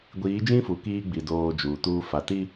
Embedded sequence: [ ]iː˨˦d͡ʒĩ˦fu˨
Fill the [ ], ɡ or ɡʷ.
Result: ɡʷ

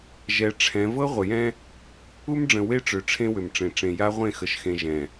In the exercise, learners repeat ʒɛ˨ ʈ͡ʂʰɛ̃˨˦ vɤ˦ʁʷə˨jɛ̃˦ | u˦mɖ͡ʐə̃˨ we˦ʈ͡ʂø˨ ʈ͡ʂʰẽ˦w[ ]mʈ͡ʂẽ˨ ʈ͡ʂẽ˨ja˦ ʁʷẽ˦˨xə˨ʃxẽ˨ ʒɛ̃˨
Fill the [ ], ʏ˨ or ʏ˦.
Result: ʏ˨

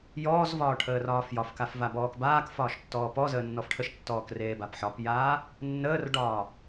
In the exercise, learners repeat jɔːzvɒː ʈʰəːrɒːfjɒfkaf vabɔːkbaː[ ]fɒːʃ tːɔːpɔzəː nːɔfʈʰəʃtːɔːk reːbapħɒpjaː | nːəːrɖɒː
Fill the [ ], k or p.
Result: k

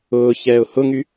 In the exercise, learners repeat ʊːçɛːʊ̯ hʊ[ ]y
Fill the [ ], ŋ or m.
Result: ŋ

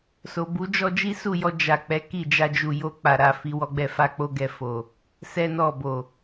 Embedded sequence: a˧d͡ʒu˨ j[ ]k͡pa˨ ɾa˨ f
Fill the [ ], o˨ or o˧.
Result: o˧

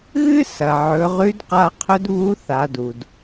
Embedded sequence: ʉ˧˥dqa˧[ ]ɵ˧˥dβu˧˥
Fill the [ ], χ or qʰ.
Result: qʰ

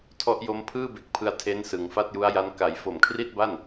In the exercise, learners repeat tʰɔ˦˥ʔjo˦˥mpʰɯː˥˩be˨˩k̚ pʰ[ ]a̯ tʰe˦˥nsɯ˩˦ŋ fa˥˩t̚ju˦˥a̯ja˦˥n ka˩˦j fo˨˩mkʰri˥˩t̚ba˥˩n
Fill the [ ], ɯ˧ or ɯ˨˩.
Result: ɯ˧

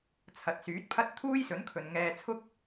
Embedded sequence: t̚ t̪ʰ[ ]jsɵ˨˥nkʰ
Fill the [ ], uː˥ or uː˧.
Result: uː˥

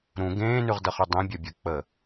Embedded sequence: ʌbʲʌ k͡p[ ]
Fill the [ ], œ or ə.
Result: ə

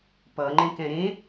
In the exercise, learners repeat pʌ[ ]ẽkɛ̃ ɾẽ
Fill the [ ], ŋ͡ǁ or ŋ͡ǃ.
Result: ŋ͡ǃ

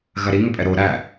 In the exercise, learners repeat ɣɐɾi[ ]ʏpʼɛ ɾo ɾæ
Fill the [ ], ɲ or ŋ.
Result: ŋ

